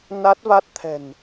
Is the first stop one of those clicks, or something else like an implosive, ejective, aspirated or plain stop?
plain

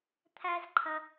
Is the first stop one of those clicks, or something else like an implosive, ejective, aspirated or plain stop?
aspirated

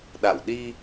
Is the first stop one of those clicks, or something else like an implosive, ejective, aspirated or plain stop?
implosive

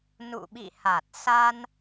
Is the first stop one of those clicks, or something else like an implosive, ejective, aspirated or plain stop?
implosive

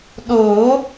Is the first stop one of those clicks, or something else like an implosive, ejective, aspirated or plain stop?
implosive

